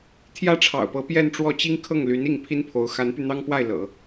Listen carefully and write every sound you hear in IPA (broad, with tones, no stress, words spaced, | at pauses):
t̪ʰjä˥ʈ͡ʂʰɑ̰˨˩ʊ̯pɤ˧˥ pjɛ˥˧nʈ͡ʂwɔ˥˩t͡ɕi˥ŋ kʰɤ˥˩ŋly˧˥ni˥˩ŋ pʰi˥npʰo˧˥ʊ̯ xa˧˥npy˧n̪ɑ˥ŋpwa˥˩ɪ̯ lɤ̰˨˩˦